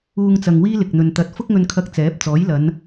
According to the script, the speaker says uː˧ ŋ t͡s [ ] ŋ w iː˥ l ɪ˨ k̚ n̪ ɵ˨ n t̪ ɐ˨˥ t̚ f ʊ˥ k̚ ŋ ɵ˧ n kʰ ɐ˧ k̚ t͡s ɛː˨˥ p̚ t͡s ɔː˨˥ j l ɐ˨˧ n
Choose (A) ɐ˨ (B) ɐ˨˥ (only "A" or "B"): A